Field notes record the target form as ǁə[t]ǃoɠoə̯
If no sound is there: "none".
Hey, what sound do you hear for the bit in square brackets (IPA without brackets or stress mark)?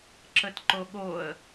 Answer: t